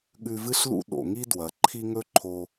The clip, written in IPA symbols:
ɠ ʉ˧ v ɨ˥ ɬ l ṵ˥ ɗ o̰˩ ŋ i˥ d w ɐ˩ ǃʰ i˥ ŋ ɵ˥ ǃʰ o˧

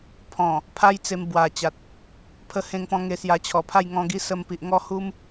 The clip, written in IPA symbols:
pʰ ɔ̃˨˩ | pʰ a˦ j t͡s e˧ m b w a˨˩ t͡ɕ a˨ t̚ | pʰ ə˧ h ẽ˧ ŋ p ɔ̃˧ ŋ e˧ s j a˧ t͡ɕʰ ɔ˨˩ pʰ a˥˧ j ŋ ɔ̃˧ ɡ i˦ s ə˧ m p i˨ ʔ ŋ ɔ˥˧ h u˦ m

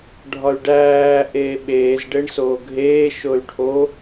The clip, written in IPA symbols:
ɖʱ ɒ y̯ ɖ æː ʔ eː ɓ eː z ɖ e ɳ s oː ɡʱ eː ʃ o y̯ ʈʰ o

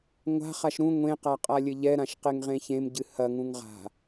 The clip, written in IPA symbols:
ŋʷ a̤ χ a ʃ ɾ ũ ŋʷ ẽ q a qʼ a lʲ ɘ ʎ ɛ ɾ ã ʃ q e ŋ ʁ ẽ ç ẽ m ɟ ɨ h ɐ ŋ ũ ŋ ʁ a̤

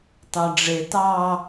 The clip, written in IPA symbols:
t ɑ ɖ͡ʐ e t ɑ

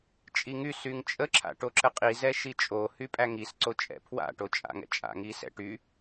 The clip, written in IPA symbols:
t͡ʃʼ i ŋ y s y ŋ t͡ʃʼ ə ǁʰ a̰ ʈ o ǁ ə qʼ i z ɛ ʃ i t͡ʃʼ o h y pʼ æ ŋ i s ǀ o t͡ʃʼ ɛ̰ pʰ w a̰ ʈ o t͡ʃʼ a̰ ŋ ɛ̰ t͡ʃʼ a̰ ŋ i s ɛ̰ ʈ y

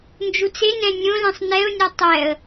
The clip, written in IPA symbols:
n d͡ʒ u t͡s e n ɛ̃ nʲ õ l ɛ̃ sˤ n ɛ ʊ̯ nʲ ɔ tˤ ɛ ə̯

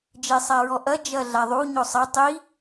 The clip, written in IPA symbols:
d͡ʒ e sˤ a ɹ ɔ ʔ ɐ d͡ʒ ɐ ɮ a ðˤ u ɲ o sˤ ɐ tˤ i

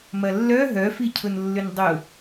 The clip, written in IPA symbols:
m ɐ lː œ ɦ œ f i cʰ ʊ n lː ʏ n dˤ ʊ

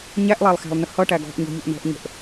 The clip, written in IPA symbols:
ɲ æ ʔ lˠ æ lˠ x æ̤ lˠ n ə h ʌ ʈ æ ɡ ɔ̤ ʔ ɲ ɔ̤ ʎ u ʔ n ɔ̤ ʔ ɲ ə̤ ʔ

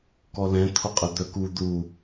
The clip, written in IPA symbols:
k ɔ l ɛ̃ t̪ʰ o qʼ ə d̪ œ k u d̪ u

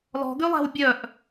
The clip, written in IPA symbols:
l ɔ̤ ɡ y lˠ æ̤ w bʲ œ ʔ

